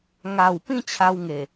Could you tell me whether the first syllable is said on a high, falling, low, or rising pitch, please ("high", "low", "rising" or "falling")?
low